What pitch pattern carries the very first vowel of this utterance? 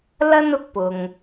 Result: high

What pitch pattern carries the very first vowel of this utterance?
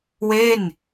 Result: falling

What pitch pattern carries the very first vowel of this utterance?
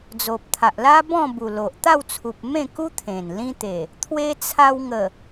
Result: low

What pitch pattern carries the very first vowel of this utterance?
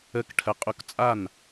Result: falling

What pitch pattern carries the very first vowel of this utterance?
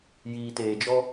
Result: low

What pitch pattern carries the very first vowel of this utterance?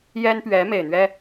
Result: high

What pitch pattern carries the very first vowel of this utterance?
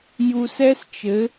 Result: low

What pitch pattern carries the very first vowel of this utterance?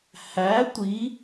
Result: rising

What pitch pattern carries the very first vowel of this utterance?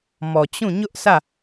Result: low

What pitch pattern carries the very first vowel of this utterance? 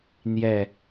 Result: low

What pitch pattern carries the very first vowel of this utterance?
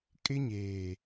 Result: high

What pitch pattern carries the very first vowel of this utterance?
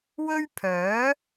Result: high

